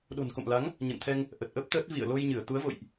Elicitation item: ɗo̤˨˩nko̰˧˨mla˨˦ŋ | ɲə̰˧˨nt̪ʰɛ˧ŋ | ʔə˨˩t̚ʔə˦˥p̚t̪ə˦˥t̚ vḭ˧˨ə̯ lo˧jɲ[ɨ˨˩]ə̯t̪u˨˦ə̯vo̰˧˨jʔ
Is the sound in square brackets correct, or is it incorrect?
incorrect